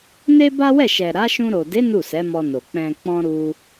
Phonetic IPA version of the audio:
n e˦ b a˦ w ɛ˦˨ ʃ ɛ˨ ɾ a˨˦ ʃ ũ˧ ɾ o˨ d e˨˦ n u˦˨ s ɛ˨˦ m ɔ˧ n o˨ k͡p ɛ̃˨ k͡p ɔ̃˧ ɾ u˧

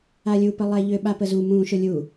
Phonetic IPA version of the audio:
a lʲ u p ə lˠ ɛ ʎ ʏ ɓ a p ə z u m ũ ʃ ʊ lʲ u

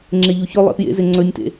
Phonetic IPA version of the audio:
ŋ͡ǁ e ʎ u ç ɵ lˠ ḛ p j ḛ z e ŋ͡ǀ ɵ nʲ t ḛ

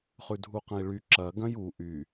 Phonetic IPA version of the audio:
χ ʉ dʱ u q ɐ̃ i̯ ɭ y ǁ ɐ ɡ ɐ̃ j u ʔ y

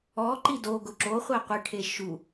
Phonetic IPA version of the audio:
ɔ ǃ i d o ɡ ʊ ǁ o χʷ ɛ qʷ ɪ ʈʰ e ʃ u

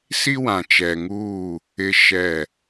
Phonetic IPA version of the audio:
s i˦ w ã˨ t͡ʃ ɛ˨ ŋ uː˦˨ | ɪ˦ ʃ ɛ˦˨

